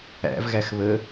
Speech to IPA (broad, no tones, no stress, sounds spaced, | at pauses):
æ̰ v ɣ æ x β ə